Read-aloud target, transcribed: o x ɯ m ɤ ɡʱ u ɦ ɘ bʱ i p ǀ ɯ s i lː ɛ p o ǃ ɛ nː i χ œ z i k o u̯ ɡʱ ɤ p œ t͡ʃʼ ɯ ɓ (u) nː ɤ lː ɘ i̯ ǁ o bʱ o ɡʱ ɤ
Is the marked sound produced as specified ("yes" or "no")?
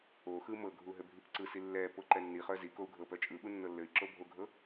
yes